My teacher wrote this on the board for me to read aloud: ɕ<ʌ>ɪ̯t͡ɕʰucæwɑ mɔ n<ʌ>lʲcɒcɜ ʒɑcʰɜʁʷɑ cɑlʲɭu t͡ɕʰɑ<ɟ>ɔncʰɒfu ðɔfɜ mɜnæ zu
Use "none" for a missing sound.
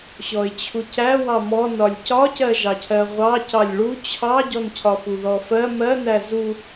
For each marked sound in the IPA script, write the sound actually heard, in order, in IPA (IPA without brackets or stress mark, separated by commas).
ɔ, ɒ, ɟ